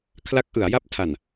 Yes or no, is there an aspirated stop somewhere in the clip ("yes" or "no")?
yes